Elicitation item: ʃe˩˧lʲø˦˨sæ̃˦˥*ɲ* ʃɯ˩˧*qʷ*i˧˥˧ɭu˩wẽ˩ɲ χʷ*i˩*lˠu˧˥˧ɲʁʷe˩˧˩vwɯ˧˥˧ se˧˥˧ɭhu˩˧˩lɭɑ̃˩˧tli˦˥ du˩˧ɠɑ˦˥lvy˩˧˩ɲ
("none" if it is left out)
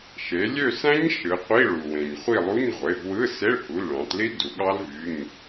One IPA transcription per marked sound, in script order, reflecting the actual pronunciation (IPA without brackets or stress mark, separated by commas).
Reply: ɲ, qʷ, i˦˨